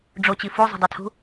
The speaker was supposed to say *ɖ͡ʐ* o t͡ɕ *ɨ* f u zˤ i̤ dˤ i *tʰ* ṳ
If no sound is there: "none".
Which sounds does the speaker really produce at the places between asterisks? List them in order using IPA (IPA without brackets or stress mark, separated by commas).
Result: ɖ͡ʐ, i, tʰ